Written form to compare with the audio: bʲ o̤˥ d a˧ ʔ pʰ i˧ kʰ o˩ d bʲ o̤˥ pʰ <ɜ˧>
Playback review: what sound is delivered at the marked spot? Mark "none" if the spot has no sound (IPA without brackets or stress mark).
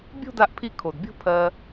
ɜ˧